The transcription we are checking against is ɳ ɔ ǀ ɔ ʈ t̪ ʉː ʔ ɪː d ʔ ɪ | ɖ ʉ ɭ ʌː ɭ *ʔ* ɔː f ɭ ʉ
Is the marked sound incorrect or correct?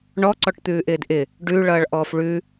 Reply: correct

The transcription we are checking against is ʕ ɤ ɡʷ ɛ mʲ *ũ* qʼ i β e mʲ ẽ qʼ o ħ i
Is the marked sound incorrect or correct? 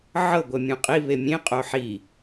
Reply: correct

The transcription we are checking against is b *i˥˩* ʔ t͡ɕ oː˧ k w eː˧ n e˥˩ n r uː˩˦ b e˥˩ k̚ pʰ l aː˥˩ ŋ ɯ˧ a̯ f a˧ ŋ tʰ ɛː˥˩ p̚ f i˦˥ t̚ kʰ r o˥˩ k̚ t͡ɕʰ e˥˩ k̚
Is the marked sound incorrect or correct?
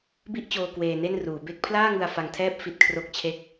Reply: correct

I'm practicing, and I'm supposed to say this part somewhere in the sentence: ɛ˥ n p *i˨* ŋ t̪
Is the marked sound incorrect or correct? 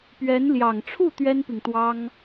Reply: correct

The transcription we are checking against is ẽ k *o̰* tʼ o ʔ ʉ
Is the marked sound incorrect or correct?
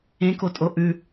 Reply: incorrect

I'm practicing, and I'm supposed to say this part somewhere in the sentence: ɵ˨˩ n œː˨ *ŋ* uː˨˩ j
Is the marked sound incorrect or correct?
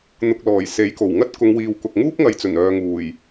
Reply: correct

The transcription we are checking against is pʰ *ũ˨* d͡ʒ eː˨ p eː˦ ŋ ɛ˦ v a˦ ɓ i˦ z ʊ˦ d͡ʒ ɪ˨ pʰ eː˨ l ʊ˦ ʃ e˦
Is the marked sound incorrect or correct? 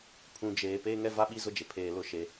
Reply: correct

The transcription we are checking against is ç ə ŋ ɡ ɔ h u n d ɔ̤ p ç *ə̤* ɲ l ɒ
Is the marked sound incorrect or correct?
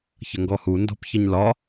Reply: incorrect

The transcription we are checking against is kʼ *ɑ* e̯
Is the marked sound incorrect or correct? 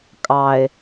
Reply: correct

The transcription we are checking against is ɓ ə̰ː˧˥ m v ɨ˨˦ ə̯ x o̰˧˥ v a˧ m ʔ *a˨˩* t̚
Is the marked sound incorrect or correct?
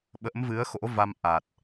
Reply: correct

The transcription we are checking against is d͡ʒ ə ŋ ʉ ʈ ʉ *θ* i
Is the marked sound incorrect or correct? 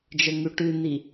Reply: incorrect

